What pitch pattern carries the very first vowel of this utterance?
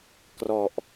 low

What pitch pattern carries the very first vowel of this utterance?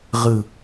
falling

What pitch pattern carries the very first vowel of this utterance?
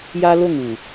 high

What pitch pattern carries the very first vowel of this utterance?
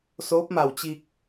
rising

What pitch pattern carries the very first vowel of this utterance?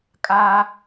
high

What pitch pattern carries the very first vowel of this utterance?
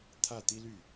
falling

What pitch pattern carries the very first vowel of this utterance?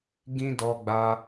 high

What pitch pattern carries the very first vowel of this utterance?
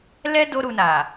high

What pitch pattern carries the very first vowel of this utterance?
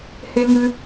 high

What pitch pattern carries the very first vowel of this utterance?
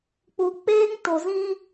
low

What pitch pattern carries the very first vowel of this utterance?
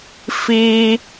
high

